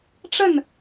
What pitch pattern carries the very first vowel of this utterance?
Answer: falling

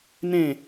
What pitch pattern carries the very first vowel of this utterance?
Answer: falling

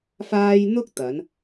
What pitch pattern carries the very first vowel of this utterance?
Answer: high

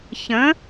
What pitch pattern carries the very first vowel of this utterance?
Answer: rising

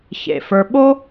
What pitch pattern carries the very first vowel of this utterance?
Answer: low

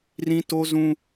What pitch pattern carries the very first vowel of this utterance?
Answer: high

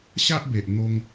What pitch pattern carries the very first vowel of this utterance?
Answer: high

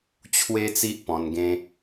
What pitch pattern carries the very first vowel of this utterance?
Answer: high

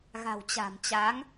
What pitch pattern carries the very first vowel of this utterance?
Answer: low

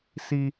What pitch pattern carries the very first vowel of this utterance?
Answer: high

